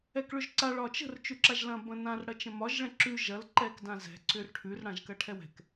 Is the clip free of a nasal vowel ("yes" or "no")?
no